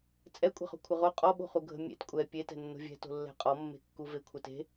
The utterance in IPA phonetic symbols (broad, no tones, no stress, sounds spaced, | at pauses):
t͡sʼ ɛ kʷʼ ɛ̤ χ o̤ kʷʰ ɘ ʁ o qʼ ɔ ɓ o̤ χ u ɡʱ ə̤ mʲ ḛ t kʷʼ ɛ pʲ e t ɛ̤ nː o̤ vʲ ɛ̤ t o̤ lː ɛ̤ qʼ ɔ mː e̤ kː u v e kʷʰ ə t e̤